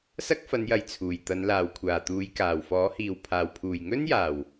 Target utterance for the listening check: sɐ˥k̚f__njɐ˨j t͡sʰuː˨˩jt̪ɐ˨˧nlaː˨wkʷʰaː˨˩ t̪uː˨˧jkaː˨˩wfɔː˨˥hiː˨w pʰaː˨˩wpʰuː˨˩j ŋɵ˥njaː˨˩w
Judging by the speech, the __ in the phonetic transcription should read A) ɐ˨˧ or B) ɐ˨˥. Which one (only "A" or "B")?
A